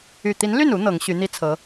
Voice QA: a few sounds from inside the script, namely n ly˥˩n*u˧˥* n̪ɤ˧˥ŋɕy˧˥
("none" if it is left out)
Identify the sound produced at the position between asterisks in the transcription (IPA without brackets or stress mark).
u˧˥